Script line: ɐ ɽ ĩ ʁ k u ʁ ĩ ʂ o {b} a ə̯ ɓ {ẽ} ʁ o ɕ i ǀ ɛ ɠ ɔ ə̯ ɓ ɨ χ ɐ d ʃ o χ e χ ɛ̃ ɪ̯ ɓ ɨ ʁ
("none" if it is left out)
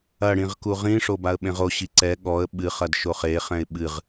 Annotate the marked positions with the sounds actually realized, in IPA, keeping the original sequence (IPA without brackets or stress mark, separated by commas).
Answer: b, ẽ